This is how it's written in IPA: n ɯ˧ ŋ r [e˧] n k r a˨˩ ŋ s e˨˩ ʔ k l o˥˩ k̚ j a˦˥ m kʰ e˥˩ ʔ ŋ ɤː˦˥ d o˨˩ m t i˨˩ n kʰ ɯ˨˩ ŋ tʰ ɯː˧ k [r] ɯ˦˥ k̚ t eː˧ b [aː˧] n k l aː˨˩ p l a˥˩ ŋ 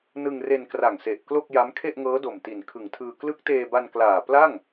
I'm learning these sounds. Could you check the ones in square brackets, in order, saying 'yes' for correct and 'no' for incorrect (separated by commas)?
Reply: yes, no, no